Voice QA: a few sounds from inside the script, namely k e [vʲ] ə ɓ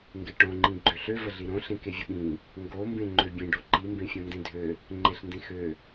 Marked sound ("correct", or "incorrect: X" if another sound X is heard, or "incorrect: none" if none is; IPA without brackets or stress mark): correct